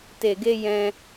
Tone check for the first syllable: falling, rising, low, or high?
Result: low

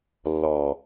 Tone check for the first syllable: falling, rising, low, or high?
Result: low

